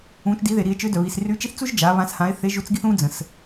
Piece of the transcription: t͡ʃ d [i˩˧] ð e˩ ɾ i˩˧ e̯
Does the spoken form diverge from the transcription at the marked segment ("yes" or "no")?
no